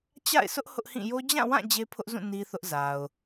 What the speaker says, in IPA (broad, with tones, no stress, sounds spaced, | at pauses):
t͡ɕ a̰˦˨ ɪ̯ sʰ ʊ˦ ʔ h ʊ˦ ʔ h ĩ˦˨ j o˦ d͡ʑ ã˦˨ w ã˦˨ d͡ʑ e˦ pʰ ʊ˦ ʔ z ũ˦˨ n i˦ θ ʊ˦ ʔ z a˨ ʊ̯